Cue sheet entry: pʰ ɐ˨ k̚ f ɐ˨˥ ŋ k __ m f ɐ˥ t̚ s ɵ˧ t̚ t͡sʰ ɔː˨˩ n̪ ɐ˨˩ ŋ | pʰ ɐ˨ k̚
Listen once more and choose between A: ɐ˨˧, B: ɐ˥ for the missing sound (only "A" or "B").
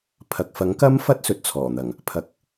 B